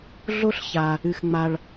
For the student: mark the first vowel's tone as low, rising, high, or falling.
high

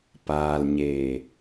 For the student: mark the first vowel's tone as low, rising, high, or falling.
low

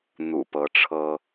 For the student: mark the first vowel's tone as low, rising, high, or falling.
low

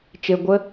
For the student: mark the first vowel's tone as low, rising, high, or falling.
low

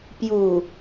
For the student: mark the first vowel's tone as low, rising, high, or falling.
low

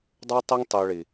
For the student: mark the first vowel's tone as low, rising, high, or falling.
high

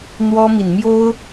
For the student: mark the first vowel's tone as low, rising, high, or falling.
high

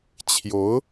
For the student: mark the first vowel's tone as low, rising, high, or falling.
rising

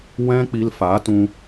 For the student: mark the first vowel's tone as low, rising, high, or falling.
high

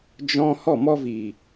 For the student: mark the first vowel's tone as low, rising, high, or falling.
high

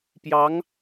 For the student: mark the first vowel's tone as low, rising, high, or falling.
rising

